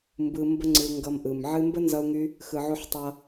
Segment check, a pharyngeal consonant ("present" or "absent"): present